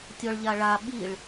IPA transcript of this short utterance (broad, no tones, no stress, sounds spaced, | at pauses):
tʲ ɔ ɭ ʎ a ɭ a ɓ i ɭ